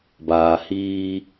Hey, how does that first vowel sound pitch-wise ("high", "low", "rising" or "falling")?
low